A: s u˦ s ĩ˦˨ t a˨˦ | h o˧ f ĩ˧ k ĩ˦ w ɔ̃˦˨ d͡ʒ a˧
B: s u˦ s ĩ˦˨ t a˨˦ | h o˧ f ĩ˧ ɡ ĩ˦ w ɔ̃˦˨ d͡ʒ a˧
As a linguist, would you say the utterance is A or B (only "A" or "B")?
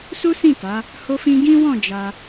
B